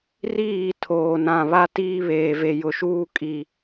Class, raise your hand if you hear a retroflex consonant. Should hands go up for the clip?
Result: no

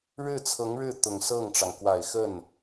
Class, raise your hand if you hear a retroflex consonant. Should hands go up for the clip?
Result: yes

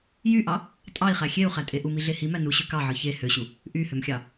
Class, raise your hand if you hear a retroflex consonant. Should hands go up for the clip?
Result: no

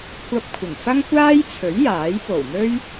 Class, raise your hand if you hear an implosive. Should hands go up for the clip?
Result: no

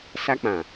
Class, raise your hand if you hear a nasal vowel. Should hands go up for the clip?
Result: yes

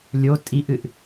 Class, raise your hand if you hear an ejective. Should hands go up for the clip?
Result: yes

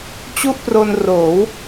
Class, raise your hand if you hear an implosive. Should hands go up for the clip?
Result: no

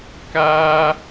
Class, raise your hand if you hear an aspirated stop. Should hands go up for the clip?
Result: no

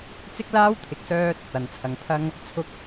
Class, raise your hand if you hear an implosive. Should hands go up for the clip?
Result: no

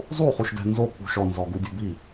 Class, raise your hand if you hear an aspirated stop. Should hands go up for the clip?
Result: no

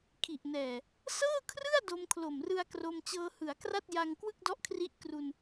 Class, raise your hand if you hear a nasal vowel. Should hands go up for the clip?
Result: no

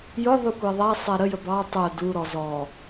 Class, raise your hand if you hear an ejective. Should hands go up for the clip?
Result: no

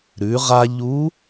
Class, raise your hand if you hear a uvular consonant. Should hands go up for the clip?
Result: yes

